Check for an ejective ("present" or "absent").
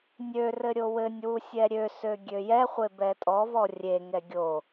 present